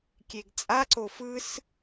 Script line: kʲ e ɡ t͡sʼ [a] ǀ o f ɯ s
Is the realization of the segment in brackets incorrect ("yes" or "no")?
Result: no